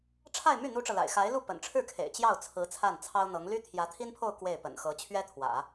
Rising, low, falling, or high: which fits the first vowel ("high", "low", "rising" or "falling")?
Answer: falling